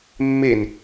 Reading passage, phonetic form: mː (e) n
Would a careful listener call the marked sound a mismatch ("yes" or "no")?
no